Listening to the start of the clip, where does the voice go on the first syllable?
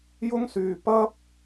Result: high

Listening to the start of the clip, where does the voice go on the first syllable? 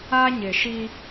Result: high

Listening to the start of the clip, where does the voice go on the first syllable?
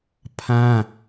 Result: high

